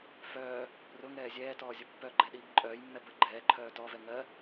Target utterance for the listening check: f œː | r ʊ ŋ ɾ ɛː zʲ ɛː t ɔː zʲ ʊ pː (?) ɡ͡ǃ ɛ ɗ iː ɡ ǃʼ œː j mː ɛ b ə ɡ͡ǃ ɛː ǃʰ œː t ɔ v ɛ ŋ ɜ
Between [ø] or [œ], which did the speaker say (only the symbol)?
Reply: œ